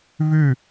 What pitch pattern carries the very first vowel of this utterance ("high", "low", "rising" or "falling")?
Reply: falling